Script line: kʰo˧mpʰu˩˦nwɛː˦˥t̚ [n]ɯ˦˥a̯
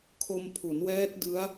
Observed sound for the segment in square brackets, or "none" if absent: d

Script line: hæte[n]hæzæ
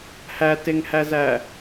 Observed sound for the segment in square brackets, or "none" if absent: ŋ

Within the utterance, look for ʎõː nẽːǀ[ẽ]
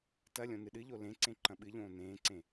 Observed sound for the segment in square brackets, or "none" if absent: ẽ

